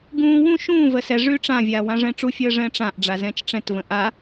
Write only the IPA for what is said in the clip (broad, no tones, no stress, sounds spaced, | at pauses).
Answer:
ɡ ũː w ũ ʃ ũː v ə s ɛ ʐ yː ʈ͡ʂ ã vʲ aː w ã ʐ ɛ̃ː ʈ͡ʂ u fʲ əː ʐ ɛ̃ː ʈ͡ʂ ã ʔ ɖ͡ʐ a z ɛ̃ː t͡ʃ ʈ͡ʂ ɛ̃ t v ə̃ ʔ a